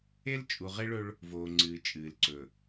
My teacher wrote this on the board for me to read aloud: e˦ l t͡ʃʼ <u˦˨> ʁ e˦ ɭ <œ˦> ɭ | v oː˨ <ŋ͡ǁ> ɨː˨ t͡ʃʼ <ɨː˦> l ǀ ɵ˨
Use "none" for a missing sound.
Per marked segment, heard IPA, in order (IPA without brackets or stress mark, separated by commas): u˨, ɵ˦, ŋ͡ǀ, ɨː˨